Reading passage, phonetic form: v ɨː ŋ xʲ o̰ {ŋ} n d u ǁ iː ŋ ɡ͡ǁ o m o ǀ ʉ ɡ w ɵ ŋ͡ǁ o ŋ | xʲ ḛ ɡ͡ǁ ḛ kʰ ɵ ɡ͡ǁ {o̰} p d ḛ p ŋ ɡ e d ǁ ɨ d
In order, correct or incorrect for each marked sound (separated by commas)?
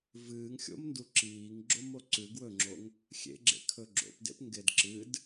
incorrect, correct